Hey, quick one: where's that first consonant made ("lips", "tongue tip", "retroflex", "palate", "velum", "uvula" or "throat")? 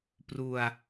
lips